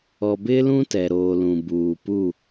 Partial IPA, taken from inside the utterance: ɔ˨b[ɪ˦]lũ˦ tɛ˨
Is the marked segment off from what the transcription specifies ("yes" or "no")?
no